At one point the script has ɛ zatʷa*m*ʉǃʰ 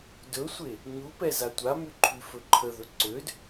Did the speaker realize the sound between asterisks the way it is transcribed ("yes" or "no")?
yes